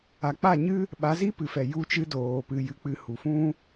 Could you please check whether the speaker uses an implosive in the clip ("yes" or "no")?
yes